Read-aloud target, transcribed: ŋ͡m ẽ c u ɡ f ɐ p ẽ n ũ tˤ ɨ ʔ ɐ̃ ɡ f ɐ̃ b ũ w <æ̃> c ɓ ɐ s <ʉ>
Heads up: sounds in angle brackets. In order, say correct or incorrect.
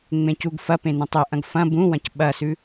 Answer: incorrect: ɐ̃, correct

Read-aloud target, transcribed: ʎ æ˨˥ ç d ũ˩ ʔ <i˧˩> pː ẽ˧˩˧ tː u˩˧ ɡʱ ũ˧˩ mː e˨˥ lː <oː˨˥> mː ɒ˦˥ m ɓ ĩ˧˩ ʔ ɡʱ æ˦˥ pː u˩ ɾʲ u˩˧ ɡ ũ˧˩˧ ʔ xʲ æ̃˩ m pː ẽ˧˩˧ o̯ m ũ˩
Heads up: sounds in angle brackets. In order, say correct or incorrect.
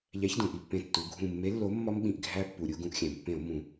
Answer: correct, incorrect: o˨˥

